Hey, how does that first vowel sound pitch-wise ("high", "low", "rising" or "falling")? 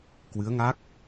rising